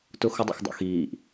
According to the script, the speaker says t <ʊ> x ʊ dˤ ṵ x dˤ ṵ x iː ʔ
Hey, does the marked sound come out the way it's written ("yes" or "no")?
yes